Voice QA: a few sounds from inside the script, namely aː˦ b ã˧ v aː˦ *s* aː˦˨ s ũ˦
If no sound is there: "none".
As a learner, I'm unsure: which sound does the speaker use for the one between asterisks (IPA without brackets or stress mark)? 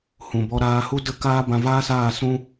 s